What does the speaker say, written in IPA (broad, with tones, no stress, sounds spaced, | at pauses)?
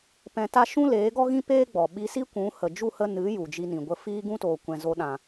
p ɛ̃˧ t a˦ ʃ ũ˦ l eː˨˦ ɡ ɔ˦ ɣ ĩ˦ p eː˦ ɡ͡b ɔ˨ ɓ i˧ s i˦ kʷ ũ˨˦ h ə˨ d͡ʒ u˦˨ h ə˧ n ɨ˨˦ j u˨ d͡ʒ i˧ n ĩ˨ ɡʷ ə˧ f iː˦ ɡ ũ˦ t oː˨ kʷ ɛ̃˨ z o˧ ɗ ã˨